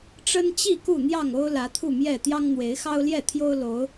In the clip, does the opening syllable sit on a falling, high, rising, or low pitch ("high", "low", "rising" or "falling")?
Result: high